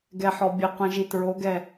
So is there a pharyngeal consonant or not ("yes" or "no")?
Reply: yes